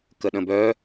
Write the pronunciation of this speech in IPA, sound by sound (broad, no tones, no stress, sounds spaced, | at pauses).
k ə ɗ ə̃ b œ